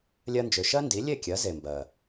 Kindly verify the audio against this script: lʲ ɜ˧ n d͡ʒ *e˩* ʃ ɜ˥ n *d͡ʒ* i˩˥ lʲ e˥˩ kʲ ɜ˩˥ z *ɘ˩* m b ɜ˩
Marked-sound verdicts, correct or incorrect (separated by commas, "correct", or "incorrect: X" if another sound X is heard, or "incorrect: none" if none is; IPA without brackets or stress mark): incorrect: ø˩, incorrect: d, incorrect: e˩